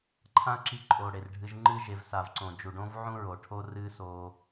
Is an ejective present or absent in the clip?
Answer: present